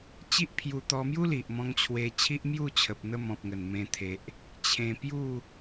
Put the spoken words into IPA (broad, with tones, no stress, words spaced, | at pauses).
t͡ɕi˦ʔpʰju˧t̪ɔ˧mju˦ li˨ʔmɔ̃˧ŋt͡ɕʰwe˧ t͡ɕʰi˦ʔmju˥˧t͡ɕʰə˨p̚n̪ə˧ mɔ̃˨p̚ ŋə˨˩nmẽ˧t̪ʰe˨ʔ | t͡ɕʰẽ˧pju˥˧